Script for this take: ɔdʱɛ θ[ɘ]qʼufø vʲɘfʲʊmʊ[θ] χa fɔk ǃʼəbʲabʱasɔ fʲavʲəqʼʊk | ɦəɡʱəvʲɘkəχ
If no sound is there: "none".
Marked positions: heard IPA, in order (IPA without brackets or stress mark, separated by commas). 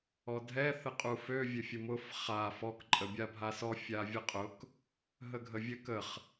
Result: ɘ, f